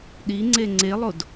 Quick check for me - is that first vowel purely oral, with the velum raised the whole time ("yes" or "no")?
yes